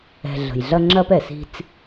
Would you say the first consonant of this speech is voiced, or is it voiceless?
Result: voiced